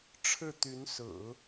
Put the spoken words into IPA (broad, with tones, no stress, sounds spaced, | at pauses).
ʈ͡ʂʰ ɻ̩˥˩ t̪ y˧˥ n s ɹ̩˨˩˦